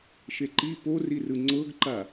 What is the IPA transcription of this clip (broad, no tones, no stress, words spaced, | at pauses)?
ʃeǃi porirɯ ŋ͡ǀɤɡǃa